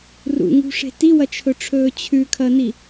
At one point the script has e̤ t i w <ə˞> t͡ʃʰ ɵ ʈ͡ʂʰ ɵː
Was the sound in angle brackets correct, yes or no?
no